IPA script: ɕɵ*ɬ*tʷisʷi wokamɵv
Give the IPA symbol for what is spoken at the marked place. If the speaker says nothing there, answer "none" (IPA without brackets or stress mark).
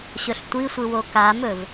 ɬ